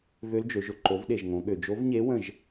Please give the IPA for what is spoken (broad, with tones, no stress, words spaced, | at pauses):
vø˧˥ld͡ʒø˩˧ʒʊ˥˨ ǃo˩˧vɗe˩ʒ ŋõ˩˧ ɠø˩ d͡ʒo˧˥vɲe˧˥ wə̃˥˨ʒ